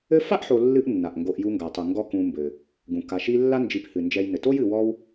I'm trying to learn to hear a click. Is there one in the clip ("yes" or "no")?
no